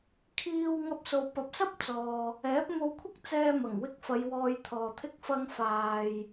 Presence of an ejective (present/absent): absent